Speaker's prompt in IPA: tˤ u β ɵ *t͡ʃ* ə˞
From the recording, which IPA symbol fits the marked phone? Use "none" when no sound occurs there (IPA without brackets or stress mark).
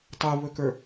k